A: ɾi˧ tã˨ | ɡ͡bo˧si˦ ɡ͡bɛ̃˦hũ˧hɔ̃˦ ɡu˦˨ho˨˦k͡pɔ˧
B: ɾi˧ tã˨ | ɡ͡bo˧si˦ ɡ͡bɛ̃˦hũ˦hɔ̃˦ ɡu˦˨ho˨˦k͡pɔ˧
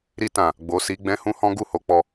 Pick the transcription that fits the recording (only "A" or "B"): B